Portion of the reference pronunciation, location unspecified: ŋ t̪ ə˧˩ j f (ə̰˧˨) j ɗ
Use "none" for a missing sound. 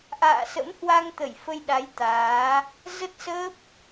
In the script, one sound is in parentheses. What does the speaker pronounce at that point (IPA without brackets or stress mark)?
ə˧